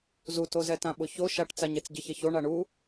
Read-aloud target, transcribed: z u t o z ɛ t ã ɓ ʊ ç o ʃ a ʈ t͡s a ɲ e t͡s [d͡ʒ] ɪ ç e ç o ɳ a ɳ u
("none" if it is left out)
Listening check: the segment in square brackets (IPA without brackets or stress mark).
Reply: ɟ